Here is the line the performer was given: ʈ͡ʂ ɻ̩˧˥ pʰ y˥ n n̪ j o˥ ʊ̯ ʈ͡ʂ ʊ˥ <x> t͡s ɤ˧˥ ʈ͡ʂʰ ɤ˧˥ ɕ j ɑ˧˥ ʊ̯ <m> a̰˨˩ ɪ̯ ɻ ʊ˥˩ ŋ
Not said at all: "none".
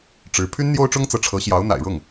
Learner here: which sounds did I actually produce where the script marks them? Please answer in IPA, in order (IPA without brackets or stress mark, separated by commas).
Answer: ŋ, n̪